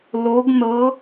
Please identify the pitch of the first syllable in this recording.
rising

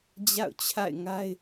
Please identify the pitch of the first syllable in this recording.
falling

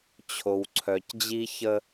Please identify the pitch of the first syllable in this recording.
low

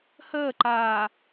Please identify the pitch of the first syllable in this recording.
falling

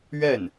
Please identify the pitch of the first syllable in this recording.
falling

